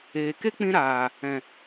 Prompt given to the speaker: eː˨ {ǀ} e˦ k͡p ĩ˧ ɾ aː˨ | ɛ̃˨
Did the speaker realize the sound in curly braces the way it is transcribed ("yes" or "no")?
no